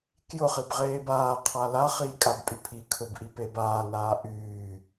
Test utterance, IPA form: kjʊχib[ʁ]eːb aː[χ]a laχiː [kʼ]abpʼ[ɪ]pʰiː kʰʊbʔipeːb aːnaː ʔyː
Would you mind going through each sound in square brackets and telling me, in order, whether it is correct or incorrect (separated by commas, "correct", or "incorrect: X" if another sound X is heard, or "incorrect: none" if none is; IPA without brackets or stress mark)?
correct, incorrect: qʰ, correct, incorrect: y